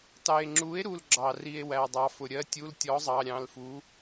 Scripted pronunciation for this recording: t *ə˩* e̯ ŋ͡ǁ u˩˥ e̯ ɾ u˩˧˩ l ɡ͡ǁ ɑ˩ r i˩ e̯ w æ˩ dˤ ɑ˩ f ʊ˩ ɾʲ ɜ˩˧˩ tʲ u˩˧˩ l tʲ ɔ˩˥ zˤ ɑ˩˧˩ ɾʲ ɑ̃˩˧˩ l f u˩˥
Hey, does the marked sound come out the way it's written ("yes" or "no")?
no